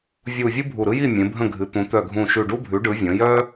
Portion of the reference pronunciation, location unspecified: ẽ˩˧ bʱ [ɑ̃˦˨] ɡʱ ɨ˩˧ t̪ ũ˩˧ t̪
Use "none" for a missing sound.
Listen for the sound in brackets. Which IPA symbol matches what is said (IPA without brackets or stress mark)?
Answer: ə̃˦˨